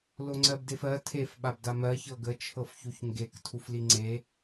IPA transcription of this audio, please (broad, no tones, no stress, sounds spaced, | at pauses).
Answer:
l o ŋ͡ǀ ɜ b d e f ɜ tʰ e f ɓ a b d a m ɜ ç ɤ ɡ ə t͡ʃʰ ɤ f ç u ç ŋ ɡ e k tʰ u f l i ŋ͡ǀ e